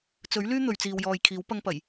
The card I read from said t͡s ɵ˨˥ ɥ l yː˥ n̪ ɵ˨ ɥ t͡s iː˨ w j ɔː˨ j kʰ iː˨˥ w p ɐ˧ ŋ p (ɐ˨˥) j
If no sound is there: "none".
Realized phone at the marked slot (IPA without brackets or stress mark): ɐ˨˩